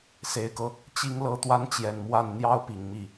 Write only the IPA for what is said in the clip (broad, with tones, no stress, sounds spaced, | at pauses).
s e˨˩ ɪ̯ k ɤ˦ | t͡ɕ i˧˥ ŋ l ɤ˧˥ t̪ w a˧˥ n t͡ɕ j ɛ˨˩ n m w a˥˩ n n̪ j ɑ˥ ʊ̯ p i˨˩ ŋ m i˥˩